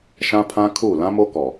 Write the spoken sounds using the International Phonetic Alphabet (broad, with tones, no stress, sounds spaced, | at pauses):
ʃ ã˦ pʰ ã˦ kʰ u˦˨ l ã˦ m o˦ k ɔ˨